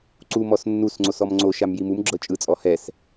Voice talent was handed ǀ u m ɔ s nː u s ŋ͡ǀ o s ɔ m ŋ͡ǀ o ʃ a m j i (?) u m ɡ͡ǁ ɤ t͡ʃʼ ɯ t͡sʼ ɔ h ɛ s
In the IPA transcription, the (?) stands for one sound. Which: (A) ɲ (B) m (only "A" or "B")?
B